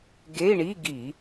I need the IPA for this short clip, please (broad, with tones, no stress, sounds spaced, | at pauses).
ɡ e˧˥˧ i̯ ɳ i˧˥˧ ɡ i˧˩˧